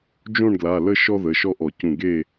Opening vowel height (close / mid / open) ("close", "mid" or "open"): mid